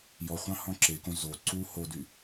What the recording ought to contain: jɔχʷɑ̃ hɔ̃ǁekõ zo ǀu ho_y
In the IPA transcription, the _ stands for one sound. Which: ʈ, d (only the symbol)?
d